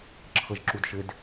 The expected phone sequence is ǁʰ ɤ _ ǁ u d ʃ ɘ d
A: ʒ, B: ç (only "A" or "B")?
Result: A